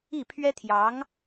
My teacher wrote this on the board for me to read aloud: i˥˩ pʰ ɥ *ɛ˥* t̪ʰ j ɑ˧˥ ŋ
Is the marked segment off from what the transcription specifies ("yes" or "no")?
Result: no